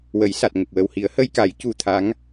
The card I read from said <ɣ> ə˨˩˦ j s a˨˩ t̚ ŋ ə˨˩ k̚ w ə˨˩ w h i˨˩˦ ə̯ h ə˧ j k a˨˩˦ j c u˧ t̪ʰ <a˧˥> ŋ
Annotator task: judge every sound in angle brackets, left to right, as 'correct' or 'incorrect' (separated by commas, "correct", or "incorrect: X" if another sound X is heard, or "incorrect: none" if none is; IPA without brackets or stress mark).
incorrect: w, correct